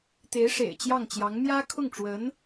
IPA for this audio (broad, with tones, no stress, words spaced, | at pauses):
t̪e˧˥ɪ̯ʂḛ˨˩ɪ̯t͡ɕjɑ˥˩ŋt͡ɕjɑ˧˥ŋ mjä˥kʰʊ˥˩ŋʈ͡ʂwə˧˥n